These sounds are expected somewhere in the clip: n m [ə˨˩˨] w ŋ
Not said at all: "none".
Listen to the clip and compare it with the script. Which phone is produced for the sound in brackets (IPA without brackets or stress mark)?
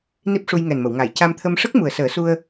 ə˨˩˨